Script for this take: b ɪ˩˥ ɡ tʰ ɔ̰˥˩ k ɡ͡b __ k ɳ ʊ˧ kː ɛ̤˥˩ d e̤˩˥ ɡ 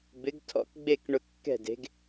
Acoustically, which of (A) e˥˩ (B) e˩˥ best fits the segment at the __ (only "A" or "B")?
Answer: A